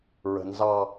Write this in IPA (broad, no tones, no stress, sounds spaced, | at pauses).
ɹ ə̤ n z ɑ